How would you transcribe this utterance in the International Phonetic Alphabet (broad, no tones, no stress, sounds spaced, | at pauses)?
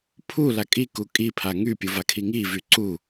pʰ u l a kʼ i k u kʼ i pʰ a ŋ y pʲ u v a kʰ i ŋ i v y ǀ u